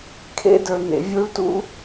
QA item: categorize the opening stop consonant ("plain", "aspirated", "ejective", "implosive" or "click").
aspirated